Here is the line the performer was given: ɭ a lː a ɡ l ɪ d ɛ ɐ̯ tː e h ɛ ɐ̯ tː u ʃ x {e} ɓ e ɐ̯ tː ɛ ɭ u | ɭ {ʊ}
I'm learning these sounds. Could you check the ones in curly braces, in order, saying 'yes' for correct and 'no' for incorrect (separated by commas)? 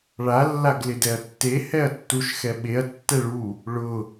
no, yes